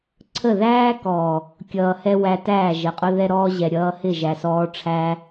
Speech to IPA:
ǀʰ ə˦˨ ð æː˦ k ɔː˨ | kʲ ʌː˨ h ɛ˧ w æ˧ t æː˦˨ ʒ ə˨ qʼ ʊ˦ ð ɛ˧ ɾ ɔː˧ ʑ ɛ˨ ɾʲ ʌː˧ h ɪ˦˨ ʒ æ˨ s ɔː˧ ʈ͡ʂʰ æ˦

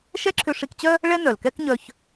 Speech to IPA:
ʃ ɛ˥ ǁʰ ʏ˧ ʂ i˧ k t͡ɕ œ˥ | ɭ ɛ˥ n œ˩ l k ɛ˥ k ɲ œ˧ ç

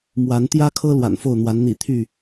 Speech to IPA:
m w a˨˦ n t̪ j ä˦ kʰ ɤ˦ l w a̰˨˩ n f o˥˨ ʊ̯ n̪ w a˨˦ n n̪ ḭ˨˩ t̪ʰ y˥˨

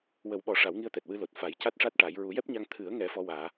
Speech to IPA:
w ə˨˩˦ w ɓ ɔ˨˩˦ ʂ a˨˩˦ w ŋ i˧ ə̯ t̪ ɛ˨˩ t̚ w ɨ˧ l o˨˩ t̚ f a˨˩˦ j c a˦˥ t̚ ʂ a˦˥ t̚ ʈ a˨˩˦ j ɹ u˨˩˦ j ɛ˦˥ p̚ ɲ a˧ ŋ t̪ʰ ɨ˨˩˦ ə̯ ŋ ɛ˨˩˦ f ɔ˧˥ w aː˨˩˦

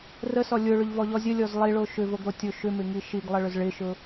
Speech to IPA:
r ə s ɔ lʲ ʊ ɭ ʏ ʎ v ɔ ʎ ɔ zʲ ə lʲ ɔ z lˠ i ɭ o ʃ ʏ v o ɡ ɾ o tʲ o ʃ ʏ m ɪ ŋ i ʃ i ɡ lˠ ə ɭ ʏ z ɭ ɪ ʃ ʊ

